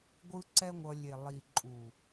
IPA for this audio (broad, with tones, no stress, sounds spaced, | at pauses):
ɡʷ ɯ˦ ǀ ɛ˦ ŋʷ ʌ˧ lʲ e˨ lˠ i˨ ǃʼ u˨